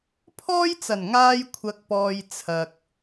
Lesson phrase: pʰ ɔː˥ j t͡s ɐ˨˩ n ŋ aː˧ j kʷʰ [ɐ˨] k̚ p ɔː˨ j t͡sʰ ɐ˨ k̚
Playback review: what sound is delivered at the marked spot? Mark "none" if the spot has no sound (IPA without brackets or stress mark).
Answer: ɐ˨